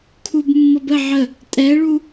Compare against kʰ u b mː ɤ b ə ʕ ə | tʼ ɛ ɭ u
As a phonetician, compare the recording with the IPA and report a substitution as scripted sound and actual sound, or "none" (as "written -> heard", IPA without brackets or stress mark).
none